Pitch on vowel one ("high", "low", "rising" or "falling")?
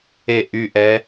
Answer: falling